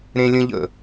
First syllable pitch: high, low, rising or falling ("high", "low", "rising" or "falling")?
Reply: high